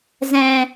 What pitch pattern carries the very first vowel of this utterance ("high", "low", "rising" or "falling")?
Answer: low